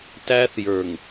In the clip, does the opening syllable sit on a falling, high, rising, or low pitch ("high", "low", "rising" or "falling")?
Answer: high